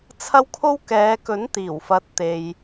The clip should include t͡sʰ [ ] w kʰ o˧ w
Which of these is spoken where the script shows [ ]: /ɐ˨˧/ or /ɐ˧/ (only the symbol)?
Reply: ɐ˧